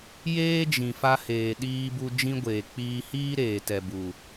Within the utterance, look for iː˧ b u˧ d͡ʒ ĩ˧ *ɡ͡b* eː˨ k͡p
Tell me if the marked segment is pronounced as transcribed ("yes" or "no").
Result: no